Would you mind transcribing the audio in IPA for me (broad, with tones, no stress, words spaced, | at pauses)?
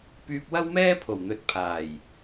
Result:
pyː˧p̚wɐ˥wmɛː˥pʰo˨˩w n̪ɵ˨˥t̚pʰaː˨˩j